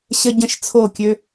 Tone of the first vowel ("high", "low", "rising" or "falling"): high